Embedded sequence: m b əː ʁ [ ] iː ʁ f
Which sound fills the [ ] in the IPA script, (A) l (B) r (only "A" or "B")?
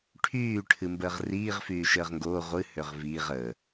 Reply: B